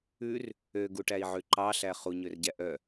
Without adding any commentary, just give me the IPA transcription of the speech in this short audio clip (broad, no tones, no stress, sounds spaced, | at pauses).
ʉ r | ø ɡ u ʈ æ i̯ ʕ ʉ ǃ ɑ ɬ æ χ u ɲ ø r ɟ æ ʔ œ